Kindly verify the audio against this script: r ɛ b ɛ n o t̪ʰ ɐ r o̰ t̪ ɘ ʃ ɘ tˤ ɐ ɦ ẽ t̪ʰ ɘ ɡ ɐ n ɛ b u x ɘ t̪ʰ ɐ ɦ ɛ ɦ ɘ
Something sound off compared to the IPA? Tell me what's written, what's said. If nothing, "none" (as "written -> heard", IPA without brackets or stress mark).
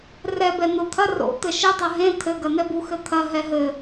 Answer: none